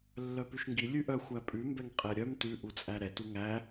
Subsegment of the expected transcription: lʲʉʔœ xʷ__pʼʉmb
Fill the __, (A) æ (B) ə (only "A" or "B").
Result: A